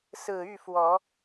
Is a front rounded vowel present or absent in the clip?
present